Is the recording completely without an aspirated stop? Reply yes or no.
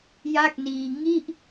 yes